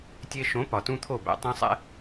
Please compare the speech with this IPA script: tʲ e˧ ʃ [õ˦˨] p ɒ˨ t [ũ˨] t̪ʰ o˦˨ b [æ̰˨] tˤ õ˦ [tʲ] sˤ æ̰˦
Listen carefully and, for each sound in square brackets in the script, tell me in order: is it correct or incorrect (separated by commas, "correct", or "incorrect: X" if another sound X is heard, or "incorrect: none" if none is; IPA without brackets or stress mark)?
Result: incorrect: õ˨˦, incorrect: ũ˦, incorrect: æ̰˧, incorrect: none